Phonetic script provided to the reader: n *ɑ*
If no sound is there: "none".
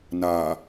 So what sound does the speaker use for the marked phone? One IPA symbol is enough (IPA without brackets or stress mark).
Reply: a